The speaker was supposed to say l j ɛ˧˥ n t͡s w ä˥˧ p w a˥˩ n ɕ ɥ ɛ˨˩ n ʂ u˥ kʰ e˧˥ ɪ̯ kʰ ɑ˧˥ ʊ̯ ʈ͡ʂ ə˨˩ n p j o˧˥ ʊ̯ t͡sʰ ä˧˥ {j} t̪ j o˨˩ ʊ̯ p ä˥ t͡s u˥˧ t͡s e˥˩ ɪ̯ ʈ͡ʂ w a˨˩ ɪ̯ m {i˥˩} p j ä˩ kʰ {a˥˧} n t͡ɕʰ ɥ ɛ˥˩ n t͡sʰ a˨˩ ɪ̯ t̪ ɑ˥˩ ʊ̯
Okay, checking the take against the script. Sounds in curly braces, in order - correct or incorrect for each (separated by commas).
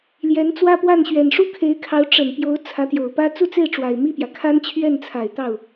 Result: incorrect, correct, incorrect